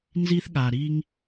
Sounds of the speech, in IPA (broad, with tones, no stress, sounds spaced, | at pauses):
n z i˥ θ ɠ a˨ ɾ i˥ ŋ